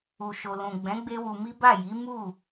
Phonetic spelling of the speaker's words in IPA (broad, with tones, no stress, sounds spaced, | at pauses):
u˧ ʃ o˧ l ũ˨ ɡ͡b ɛ̃˨˦ ɡ͡b e˦ w u˧ m i˦ b a˦˨ j i˨˦ m u˦˨